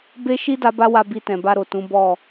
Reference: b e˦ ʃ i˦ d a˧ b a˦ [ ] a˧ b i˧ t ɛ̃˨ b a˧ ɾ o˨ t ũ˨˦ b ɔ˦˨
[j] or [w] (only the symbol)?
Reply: w